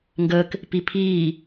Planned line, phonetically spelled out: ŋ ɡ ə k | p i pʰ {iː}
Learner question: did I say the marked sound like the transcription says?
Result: yes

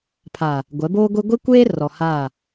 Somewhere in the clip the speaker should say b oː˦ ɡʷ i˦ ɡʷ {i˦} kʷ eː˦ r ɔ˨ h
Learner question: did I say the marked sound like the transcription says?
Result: yes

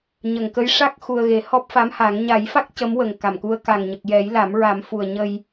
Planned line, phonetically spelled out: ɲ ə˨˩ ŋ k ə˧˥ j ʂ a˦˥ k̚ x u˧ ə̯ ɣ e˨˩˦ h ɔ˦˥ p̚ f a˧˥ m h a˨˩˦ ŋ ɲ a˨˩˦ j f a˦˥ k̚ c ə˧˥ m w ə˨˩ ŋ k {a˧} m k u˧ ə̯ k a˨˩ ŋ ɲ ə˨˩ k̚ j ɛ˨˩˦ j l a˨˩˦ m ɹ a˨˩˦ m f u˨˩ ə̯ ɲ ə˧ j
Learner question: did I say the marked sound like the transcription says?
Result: no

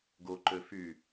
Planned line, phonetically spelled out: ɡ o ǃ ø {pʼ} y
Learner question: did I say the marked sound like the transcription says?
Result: no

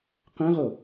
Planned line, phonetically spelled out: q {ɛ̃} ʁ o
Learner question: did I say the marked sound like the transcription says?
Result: yes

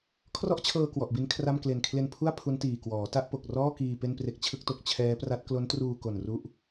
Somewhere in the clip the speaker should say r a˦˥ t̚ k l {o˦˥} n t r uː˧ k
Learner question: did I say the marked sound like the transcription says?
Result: yes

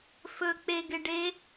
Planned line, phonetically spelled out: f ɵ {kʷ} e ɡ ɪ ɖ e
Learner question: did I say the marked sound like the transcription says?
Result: no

